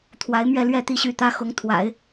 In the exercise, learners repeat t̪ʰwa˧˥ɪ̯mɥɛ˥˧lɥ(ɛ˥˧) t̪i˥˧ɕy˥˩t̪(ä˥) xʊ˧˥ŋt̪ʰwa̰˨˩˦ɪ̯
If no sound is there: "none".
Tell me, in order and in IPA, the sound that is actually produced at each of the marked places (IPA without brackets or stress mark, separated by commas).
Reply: ɛ˥˧, ä˥